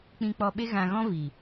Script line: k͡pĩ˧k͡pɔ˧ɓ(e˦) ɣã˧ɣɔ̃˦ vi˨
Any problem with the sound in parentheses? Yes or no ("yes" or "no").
no